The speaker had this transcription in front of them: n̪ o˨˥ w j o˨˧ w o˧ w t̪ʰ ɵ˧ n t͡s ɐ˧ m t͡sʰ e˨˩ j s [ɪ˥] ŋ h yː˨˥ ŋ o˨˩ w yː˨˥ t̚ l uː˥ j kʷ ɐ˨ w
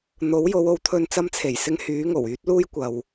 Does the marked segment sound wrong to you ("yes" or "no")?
yes